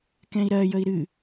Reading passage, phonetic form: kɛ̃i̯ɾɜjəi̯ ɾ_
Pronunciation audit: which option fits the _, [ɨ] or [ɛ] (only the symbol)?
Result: ɨ